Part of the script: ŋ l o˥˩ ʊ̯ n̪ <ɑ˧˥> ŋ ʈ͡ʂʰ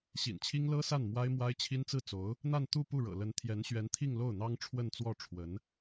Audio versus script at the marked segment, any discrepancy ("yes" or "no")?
yes